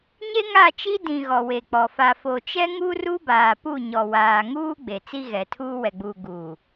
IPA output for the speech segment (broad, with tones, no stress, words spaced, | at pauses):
ɲe˦ŋa˦˨ t͡ʃi˦ dĩ˨ ɣɔ˨we˨k͡pɔ˨ fa˨fo˨t͡ʃɛ˦ ŋu˦ru˦baː˨pu˦˨ ɲɔ˨waː˨ŋuː˦ ɡ͡be˨t͡si˦ɣɛ˨tʰuː˦ wɛ˨ɡ͡buː˨ ɡuː˨